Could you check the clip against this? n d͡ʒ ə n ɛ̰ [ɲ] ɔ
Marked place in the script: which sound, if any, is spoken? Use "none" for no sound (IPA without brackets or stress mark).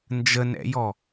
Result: j